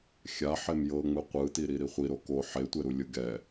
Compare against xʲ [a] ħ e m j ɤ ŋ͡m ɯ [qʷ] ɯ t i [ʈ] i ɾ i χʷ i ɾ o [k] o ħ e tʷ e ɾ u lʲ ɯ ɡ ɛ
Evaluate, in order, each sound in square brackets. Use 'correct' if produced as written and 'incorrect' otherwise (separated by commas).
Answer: correct, correct, incorrect, correct